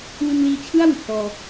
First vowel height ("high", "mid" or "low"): high